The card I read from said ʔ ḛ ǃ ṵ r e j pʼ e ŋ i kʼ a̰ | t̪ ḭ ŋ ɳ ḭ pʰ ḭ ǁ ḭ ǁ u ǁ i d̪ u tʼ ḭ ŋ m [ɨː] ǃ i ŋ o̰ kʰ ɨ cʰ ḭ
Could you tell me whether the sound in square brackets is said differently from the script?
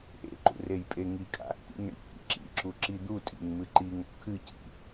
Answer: yes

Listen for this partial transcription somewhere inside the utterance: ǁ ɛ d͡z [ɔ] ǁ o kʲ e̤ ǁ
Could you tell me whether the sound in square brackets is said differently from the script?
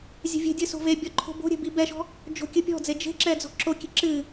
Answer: yes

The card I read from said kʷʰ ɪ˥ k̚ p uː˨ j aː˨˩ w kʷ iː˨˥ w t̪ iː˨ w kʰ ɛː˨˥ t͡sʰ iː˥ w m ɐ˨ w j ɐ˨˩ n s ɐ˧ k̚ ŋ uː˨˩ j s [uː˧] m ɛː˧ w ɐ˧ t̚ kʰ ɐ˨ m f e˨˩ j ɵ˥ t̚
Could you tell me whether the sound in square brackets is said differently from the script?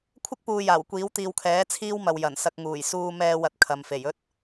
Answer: no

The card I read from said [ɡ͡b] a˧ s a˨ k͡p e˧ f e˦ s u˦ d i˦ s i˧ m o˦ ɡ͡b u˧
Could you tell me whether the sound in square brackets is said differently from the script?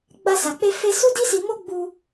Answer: no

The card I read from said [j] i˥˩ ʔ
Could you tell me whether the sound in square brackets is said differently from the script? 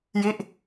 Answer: no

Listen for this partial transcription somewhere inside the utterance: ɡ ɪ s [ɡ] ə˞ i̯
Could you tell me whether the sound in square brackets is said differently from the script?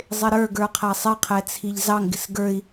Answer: no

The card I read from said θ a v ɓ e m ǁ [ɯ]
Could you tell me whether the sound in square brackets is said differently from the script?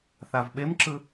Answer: no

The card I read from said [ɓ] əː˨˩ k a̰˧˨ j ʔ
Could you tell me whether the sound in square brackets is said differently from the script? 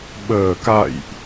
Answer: no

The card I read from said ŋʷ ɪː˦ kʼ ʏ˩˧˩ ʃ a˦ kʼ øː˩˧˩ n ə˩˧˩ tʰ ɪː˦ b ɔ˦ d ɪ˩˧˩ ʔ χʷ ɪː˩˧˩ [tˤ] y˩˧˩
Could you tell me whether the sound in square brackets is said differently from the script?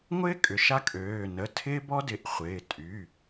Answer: yes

